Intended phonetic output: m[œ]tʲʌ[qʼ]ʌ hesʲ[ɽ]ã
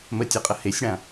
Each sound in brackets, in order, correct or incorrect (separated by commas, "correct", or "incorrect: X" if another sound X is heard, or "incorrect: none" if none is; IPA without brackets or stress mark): incorrect: ə, correct, correct